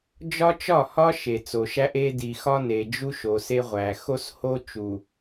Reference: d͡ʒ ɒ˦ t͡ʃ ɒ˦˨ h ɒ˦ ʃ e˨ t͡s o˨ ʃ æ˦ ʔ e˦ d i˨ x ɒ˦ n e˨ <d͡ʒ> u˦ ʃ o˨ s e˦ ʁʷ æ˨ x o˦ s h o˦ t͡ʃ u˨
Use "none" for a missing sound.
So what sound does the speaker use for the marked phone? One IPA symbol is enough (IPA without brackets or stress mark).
d͡ʒ